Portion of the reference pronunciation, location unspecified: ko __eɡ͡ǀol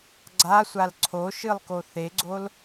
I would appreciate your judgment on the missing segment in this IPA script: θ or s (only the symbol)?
θ